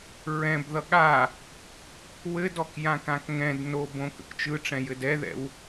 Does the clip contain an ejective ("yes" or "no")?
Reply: no